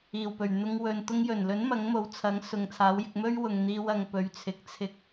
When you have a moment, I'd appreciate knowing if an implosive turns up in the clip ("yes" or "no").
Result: no